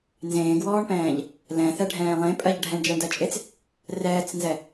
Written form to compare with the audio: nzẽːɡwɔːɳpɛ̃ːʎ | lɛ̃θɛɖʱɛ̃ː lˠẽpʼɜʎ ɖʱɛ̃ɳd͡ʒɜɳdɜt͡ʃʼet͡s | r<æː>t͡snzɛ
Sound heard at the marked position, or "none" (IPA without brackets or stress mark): ɛː